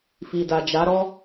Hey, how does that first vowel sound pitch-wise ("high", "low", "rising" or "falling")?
low